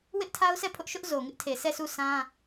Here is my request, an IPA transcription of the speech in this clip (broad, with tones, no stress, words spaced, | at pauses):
wɪ˦ʔtʰa˦ʊ̯sɛ˦˨pʰʊ˦ʔ ʃʊ˦ʔ zo˨ŋɪ˦ʔtʰe˨ sʰɛ˦˨su˦˨ sʰã˦